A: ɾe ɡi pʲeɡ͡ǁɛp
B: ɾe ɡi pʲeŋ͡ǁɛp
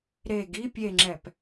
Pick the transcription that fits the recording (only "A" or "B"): B